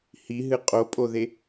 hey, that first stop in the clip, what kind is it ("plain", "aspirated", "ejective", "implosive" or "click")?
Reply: ejective